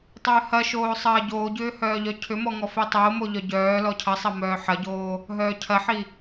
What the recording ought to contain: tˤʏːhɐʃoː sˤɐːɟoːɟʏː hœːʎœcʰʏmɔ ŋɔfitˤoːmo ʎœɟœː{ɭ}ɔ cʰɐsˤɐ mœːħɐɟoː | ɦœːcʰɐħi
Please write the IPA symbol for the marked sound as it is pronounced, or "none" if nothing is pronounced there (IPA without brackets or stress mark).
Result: l